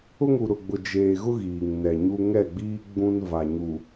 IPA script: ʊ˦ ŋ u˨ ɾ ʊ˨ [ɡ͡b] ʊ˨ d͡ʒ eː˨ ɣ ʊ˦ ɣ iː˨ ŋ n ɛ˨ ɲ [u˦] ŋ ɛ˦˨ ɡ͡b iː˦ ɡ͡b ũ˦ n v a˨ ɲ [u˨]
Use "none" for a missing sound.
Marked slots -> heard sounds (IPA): ɡ͡b, u˦, u˨

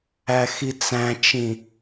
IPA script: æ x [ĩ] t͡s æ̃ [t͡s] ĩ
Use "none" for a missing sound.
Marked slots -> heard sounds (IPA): i, t͡ʃ

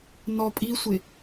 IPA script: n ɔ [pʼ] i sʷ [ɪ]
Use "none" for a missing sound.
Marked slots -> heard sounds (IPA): pʼ, ɪ

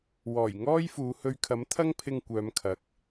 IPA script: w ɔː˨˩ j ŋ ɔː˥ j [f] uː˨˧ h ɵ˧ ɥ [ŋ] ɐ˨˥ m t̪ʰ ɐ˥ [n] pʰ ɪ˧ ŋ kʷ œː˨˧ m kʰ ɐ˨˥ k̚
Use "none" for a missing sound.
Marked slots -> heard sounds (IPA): f, kʰ, ŋ

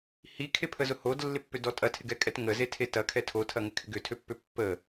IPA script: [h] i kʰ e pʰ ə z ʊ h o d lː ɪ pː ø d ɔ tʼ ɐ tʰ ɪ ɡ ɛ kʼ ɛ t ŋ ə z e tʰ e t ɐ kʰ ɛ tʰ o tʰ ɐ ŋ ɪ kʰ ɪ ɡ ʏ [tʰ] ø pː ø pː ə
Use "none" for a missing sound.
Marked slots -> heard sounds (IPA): h, tʰ

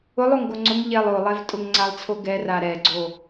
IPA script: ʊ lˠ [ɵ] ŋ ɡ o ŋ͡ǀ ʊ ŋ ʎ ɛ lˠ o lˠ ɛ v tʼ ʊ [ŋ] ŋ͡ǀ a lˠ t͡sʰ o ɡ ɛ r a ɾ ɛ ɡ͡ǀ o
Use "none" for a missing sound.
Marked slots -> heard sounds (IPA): o, ŋ

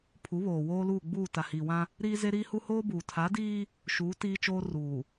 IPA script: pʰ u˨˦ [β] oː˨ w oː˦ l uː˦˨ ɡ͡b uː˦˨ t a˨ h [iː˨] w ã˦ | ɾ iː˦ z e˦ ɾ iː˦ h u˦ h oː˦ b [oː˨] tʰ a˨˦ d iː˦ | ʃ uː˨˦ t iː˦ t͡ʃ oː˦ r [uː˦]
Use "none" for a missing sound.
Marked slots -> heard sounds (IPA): β, iː˨, uː˨, uː˨

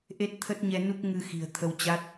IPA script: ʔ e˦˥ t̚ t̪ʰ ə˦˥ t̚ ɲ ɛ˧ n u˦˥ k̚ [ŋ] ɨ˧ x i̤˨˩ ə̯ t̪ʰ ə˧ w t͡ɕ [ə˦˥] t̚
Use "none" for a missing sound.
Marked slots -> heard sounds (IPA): ŋ, a˦˥

